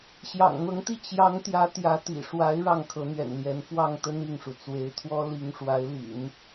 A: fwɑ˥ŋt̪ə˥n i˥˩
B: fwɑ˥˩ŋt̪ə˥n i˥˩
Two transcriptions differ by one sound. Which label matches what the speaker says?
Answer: B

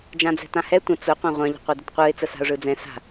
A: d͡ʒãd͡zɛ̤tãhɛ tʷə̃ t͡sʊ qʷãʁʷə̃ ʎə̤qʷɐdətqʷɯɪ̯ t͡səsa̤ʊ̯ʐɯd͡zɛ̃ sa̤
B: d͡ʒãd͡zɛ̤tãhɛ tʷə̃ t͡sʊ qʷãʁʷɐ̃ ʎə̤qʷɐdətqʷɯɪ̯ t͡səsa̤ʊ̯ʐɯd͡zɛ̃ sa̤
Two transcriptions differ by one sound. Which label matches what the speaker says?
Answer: B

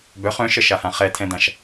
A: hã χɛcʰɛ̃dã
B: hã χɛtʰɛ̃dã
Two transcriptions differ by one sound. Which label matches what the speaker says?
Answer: B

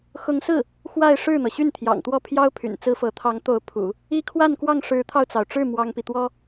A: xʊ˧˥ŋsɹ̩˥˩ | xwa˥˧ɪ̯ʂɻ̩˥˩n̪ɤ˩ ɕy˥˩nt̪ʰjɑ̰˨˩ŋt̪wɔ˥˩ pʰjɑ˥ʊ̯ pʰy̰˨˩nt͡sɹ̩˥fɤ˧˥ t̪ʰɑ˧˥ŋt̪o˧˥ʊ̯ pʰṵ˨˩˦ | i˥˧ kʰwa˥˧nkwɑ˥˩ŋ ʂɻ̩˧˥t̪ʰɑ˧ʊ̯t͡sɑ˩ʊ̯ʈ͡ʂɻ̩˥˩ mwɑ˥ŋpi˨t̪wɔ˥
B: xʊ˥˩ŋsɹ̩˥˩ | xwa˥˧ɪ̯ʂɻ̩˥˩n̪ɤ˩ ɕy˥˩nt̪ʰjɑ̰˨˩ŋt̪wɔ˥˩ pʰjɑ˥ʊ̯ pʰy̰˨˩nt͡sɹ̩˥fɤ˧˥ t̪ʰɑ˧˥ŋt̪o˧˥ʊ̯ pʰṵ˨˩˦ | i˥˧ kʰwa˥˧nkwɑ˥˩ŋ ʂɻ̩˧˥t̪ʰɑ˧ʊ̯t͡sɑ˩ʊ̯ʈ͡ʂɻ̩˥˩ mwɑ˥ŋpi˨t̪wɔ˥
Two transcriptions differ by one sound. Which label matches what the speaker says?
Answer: A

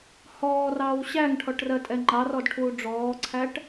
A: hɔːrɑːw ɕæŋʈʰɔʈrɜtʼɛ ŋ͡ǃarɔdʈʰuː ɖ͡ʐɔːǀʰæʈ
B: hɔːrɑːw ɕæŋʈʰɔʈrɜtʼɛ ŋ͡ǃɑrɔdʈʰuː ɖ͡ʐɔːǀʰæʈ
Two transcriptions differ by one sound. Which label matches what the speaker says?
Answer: B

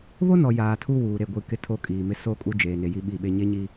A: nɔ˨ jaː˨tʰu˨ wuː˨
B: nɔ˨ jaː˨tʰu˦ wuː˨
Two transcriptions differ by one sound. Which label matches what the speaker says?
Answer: B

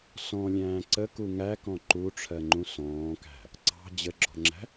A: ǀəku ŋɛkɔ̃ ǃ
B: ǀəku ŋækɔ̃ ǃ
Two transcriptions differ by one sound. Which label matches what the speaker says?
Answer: B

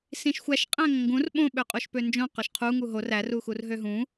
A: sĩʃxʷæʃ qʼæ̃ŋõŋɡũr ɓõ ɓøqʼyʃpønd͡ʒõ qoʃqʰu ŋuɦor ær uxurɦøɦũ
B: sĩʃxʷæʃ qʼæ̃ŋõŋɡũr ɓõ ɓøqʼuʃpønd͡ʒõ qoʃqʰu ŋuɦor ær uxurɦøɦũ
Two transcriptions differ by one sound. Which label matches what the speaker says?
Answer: B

